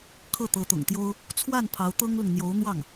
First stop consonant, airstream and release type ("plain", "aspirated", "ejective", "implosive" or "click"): aspirated